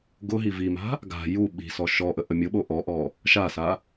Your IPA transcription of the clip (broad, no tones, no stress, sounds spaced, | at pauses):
ɡ ʊ ɦ i v i m a̤ | ɡ a̤ j u ɓ i̤ s ɔ ʃ ɔ ʔ ə ʔ ə mʲ ʊ ɓ o ʔ ɔ ʔ ɔ | ʃ a s a